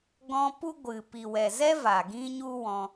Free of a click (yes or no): yes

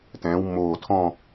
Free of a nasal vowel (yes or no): no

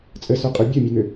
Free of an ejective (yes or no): no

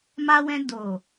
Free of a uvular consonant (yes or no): yes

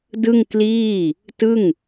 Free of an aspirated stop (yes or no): yes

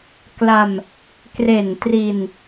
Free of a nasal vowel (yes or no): yes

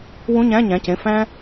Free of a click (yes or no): yes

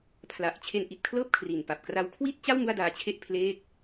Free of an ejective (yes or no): yes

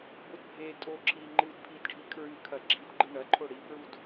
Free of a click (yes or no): no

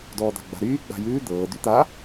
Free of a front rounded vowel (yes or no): no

